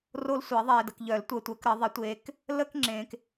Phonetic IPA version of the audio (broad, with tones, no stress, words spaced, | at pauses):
ro˦lsʷɪ˨˩˦ ðˤeː˨də˨kʎœ˨˩˦ltʷəː˨ tʷəː˨˦kɾə˨˩˦ ðˤɪ˨˦tʷeː˨˦k | ləː˦kŋ͡ǁẽː˨k